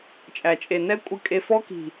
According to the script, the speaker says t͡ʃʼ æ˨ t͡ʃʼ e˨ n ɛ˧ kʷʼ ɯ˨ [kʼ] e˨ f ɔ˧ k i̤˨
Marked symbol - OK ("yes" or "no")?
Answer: yes